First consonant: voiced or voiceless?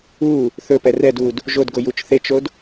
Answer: voiceless